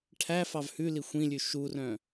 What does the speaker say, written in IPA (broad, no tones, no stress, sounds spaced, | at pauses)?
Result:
ʈʰ æ f ɑ v h ʉ l i xʷ ĩ lʲ ʉ ʃ u r œ̃